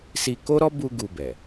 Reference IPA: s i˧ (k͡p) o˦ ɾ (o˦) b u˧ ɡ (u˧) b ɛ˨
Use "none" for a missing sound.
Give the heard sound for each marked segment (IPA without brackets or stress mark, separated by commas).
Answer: k, ɔ˦, u˧